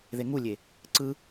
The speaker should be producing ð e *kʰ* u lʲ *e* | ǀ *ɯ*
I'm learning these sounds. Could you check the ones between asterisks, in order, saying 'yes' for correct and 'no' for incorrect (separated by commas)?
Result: no, yes, yes